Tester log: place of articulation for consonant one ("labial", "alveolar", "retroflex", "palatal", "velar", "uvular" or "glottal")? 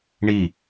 retroflex